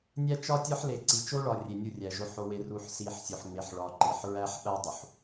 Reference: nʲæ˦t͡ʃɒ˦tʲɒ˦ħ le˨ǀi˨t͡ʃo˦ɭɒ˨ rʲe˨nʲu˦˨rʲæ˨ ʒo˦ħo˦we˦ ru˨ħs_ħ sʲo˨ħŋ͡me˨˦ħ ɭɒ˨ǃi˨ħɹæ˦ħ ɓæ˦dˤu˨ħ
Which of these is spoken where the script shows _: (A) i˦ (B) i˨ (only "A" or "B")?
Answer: B